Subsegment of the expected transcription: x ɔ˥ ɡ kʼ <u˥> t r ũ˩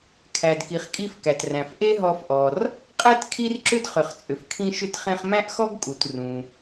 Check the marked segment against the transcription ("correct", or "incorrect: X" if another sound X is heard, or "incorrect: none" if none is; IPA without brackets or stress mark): incorrect: u˩